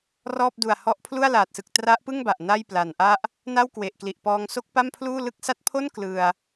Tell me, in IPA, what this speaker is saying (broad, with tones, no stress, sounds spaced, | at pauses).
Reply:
r ɔː˥˩ p̚ d u˨˩ a̯ h ɔ˦˥ ʔ pʰ l u˥˩ a̯ l aː˨˩ t̚ s ɯ˨˩ k̚ t r a˦˥ ʔ p ɯ˥˩ ŋ b a˨˩ ʔ n a˥˩ j p l a˨˩ n ʔ a˥˩ ʔ | n a˥˩ w k w e˨˩ ʔ k l i˨˩ ʔ p ɔː˧ ŋ s o˥˩ k̚ p a˥˩ m pʰ l uː˥˩ l ɯ˦˥ k̚ s a˦˥ t̚ pʰ o˥˩ n k l ɯ˧ a̯